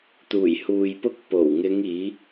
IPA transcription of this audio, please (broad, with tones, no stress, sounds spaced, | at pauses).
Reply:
t̪ uː˨˩ j h uː˨ j p ʊ˧ k̚ p o˨˩ w ŋ ɪ˨˧ ŋ iː˨˧